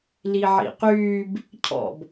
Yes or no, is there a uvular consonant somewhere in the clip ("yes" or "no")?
yes